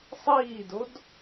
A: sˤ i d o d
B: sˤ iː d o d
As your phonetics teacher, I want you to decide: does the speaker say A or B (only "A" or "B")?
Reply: B